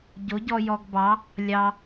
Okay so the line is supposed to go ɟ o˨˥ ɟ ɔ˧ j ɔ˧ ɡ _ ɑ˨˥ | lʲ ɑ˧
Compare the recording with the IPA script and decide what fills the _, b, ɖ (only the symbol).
b